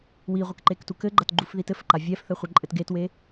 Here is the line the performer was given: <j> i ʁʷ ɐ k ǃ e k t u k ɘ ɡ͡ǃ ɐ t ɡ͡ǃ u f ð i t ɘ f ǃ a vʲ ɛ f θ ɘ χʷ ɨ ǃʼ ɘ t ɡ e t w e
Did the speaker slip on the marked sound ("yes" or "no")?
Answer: yes